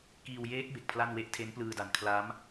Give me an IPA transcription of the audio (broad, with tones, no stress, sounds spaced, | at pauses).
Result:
k iː˧ w j eː˦˥ k̚ b e˨˩ k̚ pʰ l a˥˩ n w e˥˩ ʔ tʰ e˦˥ n p l ɯː˧ d a˨˩ n kʰ l a˦˥ m